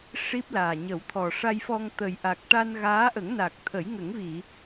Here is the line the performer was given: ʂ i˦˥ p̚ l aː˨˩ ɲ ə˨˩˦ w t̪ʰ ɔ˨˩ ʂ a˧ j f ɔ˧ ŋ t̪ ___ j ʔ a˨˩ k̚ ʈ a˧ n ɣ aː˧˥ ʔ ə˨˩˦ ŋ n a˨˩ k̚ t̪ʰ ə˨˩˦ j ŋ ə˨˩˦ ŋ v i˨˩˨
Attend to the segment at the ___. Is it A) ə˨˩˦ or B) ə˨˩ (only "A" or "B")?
B